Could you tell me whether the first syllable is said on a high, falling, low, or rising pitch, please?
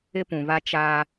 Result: high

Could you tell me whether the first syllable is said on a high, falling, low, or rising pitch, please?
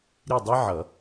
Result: falling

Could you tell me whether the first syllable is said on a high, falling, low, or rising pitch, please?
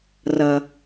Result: low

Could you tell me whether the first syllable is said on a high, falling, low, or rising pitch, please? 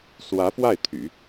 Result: rising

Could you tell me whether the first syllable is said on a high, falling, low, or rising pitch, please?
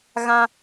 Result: high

